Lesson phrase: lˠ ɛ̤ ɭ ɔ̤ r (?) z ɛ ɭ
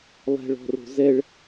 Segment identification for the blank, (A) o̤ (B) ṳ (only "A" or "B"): A